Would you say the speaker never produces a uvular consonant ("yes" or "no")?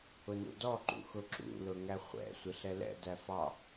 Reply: no